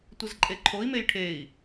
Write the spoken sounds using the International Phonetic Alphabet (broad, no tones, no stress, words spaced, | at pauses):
tʷɘzǃʼeǃʰoi̯mej ʈʰei̯